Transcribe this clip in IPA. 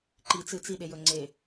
ǃ i t͡s ɨ t͡s i ɗ e j ɵ ŋ͡ǀ e

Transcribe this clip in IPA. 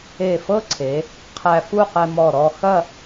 e˧˩ f ɤ˥ ǀʰ e˩˧ | qʰ æ˧ f u˥˧ q ɛ˧ m ɔ˧˩ ɾ ɔ˥˧ x ɐ˥˧

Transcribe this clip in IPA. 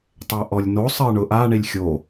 tˤ ɛ ʔ ɔ lʲ n o sˤ ɜ ɳ ʊ ʔ a ɳ i lʲ xʲ o

